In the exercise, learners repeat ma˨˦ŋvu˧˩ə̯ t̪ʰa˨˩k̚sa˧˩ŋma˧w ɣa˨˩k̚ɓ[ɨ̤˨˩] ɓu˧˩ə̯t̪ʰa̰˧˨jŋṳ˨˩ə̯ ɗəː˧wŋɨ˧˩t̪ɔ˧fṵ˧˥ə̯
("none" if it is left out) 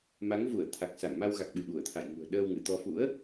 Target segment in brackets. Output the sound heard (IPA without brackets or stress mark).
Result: ɨ˧˩